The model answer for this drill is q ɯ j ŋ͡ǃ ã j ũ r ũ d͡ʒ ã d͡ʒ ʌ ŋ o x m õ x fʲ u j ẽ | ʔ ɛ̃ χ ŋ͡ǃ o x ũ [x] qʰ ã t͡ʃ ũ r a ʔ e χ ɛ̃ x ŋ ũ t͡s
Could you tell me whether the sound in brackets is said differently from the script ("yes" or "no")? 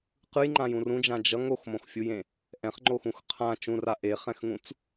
no